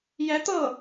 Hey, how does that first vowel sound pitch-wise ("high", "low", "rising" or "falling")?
rising